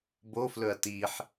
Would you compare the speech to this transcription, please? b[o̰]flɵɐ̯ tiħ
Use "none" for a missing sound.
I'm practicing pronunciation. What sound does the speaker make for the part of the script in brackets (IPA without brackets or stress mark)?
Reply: o